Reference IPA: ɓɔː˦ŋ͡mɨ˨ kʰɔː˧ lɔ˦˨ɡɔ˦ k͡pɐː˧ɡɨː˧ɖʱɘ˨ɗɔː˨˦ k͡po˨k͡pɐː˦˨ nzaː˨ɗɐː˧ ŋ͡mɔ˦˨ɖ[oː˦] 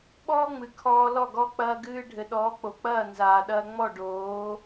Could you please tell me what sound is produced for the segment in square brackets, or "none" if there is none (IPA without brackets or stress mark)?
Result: oː˨˦